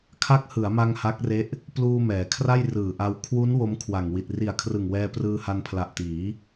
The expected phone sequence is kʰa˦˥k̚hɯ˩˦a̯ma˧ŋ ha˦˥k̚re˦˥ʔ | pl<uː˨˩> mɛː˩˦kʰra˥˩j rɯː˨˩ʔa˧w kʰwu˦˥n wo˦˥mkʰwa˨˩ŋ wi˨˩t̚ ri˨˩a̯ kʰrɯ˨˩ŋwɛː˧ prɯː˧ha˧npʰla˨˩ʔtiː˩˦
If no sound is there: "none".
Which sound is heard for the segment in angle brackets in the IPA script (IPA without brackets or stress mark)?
uː˧